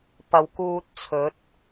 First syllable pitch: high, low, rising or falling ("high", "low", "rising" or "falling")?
low